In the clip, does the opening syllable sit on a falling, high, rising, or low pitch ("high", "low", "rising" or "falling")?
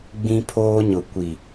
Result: high